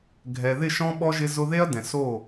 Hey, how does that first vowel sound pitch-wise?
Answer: low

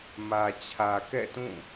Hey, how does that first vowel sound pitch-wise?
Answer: low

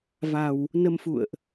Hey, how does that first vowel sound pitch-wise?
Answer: low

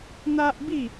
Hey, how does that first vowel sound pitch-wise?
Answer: high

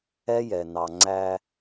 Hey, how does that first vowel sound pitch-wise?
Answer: high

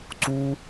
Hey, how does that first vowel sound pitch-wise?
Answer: high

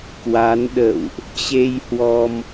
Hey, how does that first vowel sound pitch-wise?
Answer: rising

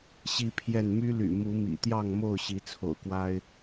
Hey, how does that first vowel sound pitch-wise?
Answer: high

